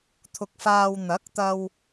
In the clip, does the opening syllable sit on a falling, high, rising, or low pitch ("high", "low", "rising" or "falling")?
low